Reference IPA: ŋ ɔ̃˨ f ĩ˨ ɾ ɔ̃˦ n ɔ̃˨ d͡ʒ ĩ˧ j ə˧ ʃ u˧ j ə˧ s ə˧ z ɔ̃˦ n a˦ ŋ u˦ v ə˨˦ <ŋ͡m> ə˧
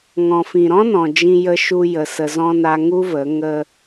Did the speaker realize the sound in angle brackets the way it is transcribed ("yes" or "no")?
no